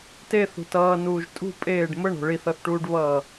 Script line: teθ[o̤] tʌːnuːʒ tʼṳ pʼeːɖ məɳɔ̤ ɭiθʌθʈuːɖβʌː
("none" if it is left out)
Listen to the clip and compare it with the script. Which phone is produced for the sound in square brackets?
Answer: ṳ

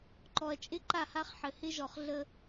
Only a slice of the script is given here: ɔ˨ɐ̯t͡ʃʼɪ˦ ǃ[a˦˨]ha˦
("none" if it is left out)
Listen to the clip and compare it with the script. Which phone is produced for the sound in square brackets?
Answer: a˦˨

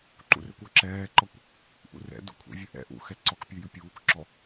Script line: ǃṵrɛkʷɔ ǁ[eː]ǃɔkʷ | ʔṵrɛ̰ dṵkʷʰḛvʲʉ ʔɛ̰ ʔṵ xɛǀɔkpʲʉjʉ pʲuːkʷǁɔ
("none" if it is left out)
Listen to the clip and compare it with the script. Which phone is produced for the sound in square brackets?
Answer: ɛː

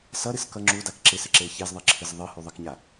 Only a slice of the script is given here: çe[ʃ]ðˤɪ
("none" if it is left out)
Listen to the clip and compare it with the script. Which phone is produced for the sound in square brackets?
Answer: z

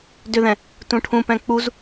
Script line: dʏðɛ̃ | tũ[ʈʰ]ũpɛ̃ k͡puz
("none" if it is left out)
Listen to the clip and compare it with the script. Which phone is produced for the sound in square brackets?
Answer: ʈʰ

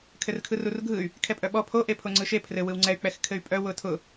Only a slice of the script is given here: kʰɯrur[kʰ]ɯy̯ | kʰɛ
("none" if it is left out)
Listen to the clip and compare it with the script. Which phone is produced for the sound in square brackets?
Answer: ɡʱ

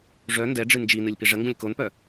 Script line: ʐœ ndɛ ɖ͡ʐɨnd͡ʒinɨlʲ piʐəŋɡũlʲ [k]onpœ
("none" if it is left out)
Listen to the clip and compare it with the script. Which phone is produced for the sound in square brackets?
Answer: k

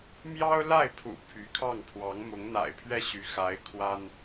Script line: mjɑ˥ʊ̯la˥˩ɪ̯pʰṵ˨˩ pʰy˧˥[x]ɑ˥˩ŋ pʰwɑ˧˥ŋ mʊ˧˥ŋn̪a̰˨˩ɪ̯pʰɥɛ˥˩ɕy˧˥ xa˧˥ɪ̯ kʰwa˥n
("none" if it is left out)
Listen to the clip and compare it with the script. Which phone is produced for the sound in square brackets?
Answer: kʰ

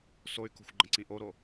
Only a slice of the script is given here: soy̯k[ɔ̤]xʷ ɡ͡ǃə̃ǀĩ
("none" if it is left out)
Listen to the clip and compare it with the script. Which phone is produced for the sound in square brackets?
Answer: o̤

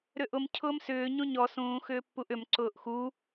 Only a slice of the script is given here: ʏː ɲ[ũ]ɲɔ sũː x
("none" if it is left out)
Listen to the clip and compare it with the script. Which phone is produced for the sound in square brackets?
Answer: ũ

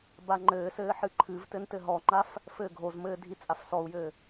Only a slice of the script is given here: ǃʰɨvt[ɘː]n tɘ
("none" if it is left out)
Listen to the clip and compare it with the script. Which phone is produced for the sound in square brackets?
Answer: ɘ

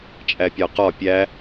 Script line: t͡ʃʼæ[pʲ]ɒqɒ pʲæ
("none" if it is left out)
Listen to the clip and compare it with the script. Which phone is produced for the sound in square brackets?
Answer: pʲ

